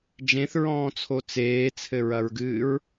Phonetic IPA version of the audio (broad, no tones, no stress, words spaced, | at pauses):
d͡ʒẽθɹɔ̃ːt͡sʰo t͡seːt͡sʰɘɹɐɹɡɨːɹ